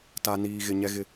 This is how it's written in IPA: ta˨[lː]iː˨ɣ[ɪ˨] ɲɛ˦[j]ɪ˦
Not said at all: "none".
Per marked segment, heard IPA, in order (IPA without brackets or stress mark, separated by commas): n, ɪ˨, ɣ